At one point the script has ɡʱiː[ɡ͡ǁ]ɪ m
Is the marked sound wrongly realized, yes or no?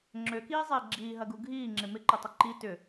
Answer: yes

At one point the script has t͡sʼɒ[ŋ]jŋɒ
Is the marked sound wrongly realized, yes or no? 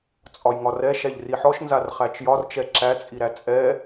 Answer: yes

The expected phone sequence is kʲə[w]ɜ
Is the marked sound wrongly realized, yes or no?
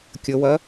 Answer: no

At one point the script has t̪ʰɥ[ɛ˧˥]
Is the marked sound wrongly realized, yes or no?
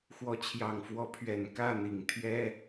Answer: yes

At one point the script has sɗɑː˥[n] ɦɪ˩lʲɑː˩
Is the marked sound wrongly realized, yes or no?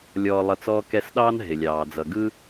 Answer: no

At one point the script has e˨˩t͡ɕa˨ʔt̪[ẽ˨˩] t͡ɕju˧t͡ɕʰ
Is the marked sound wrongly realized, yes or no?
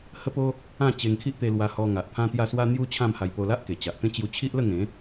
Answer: yes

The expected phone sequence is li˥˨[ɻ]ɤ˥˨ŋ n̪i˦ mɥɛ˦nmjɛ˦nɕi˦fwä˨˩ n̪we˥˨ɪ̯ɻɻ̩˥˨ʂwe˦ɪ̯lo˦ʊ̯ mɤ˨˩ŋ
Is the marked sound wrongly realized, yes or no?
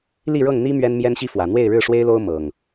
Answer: no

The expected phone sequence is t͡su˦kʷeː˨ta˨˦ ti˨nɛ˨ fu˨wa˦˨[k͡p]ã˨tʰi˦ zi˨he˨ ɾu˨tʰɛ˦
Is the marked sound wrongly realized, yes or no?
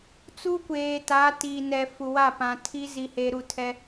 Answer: yes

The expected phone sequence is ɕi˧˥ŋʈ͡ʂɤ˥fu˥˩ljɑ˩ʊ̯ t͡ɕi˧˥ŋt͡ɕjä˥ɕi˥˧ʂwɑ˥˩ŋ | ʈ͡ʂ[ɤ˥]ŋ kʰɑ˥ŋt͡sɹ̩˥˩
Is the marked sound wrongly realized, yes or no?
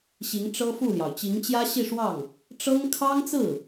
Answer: no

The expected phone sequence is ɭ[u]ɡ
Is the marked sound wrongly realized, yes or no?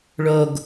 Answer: yes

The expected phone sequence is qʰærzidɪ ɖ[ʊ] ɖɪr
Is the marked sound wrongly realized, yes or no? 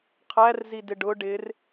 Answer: no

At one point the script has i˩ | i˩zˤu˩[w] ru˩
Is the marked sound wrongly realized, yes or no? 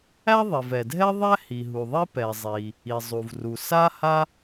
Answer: yes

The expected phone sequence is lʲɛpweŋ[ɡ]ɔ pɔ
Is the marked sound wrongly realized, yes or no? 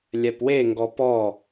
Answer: no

